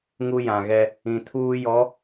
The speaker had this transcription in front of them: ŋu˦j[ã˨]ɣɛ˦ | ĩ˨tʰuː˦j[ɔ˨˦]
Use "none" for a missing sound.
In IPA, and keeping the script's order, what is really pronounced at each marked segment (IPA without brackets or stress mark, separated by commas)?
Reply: ã˨, ɔ˨˦